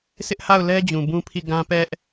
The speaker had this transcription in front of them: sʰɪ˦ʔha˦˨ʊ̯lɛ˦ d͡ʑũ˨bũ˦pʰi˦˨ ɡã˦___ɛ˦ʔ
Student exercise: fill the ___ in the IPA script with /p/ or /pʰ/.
p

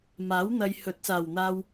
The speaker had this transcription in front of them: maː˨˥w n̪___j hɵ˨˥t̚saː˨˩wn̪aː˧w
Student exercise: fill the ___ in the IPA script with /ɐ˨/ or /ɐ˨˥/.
ɐ˨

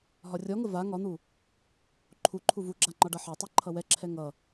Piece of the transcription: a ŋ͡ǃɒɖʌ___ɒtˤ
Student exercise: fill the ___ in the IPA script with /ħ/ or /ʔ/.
ħ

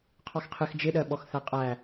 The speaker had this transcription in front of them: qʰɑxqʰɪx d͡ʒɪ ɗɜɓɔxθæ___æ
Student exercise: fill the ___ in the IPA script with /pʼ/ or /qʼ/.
qʼ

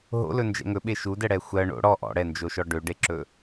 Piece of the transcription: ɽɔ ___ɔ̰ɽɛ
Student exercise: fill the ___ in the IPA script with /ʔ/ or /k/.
ʔ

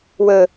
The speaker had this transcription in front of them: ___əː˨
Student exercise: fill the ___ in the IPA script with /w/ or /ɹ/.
w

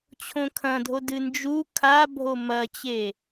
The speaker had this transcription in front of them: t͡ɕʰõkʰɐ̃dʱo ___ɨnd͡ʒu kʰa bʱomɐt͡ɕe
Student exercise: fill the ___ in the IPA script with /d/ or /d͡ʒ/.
d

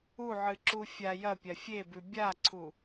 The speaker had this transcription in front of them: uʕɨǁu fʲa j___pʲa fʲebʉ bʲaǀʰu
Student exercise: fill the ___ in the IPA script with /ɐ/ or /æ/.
ɐ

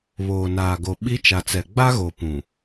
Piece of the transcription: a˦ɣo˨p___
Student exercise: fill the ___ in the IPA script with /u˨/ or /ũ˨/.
ũ˨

